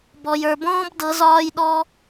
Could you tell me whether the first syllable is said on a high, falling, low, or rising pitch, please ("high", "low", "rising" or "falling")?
low